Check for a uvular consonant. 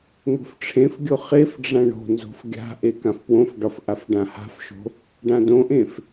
present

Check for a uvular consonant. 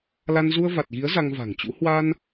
absent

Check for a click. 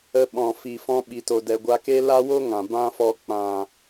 absent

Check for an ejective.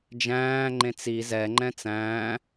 absent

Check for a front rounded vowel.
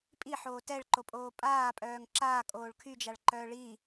present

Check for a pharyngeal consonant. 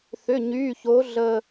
absent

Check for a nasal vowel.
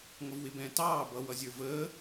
present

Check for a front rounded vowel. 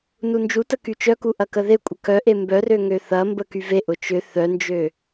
present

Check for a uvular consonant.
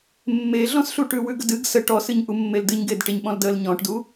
absent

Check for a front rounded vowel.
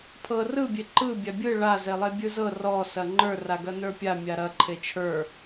absent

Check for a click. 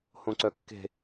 present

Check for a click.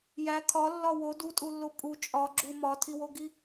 present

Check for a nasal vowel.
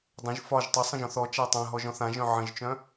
present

